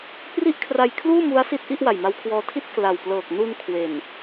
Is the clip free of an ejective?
yes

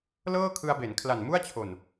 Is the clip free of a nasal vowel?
yes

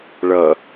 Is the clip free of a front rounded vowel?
yes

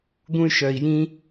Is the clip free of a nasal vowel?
no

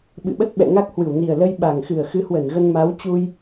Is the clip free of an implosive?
no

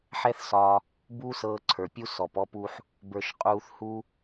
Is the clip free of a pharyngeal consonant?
no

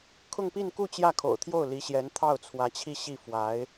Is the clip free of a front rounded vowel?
yes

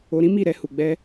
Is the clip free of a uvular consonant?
yes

